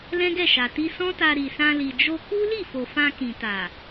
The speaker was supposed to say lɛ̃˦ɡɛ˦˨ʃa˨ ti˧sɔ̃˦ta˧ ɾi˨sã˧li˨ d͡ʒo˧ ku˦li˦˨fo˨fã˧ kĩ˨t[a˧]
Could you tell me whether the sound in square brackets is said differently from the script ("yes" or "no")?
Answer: yes